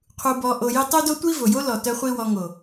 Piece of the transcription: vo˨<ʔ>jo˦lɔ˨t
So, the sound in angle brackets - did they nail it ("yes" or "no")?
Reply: no